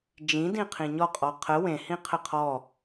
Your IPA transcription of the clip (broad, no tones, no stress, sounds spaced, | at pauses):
d͡ʒ ĩ d ĩ qʰ ĩ ɲ ɔ qʼ ɔ qʰ ə w ẽ h ĩ qʰ ə qʰ ɔ